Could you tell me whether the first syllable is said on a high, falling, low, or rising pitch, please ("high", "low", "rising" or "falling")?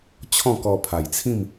falling